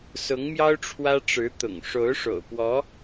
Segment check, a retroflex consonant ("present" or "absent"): present